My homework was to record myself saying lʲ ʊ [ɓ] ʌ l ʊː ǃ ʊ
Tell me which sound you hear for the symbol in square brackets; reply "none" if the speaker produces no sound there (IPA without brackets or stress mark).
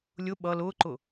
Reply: ɓ